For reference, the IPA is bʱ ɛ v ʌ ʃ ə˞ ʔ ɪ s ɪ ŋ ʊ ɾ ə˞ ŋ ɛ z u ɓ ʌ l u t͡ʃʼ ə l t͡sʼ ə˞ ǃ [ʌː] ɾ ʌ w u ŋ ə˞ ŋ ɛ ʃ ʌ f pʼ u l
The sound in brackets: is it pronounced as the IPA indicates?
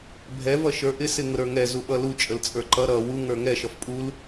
no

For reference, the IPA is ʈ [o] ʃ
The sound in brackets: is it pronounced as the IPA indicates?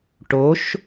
yes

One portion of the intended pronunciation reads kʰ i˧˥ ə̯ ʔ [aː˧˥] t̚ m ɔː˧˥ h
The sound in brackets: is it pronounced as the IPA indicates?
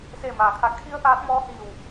yes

